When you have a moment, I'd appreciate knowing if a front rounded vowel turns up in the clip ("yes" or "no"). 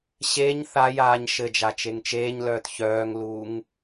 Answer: yes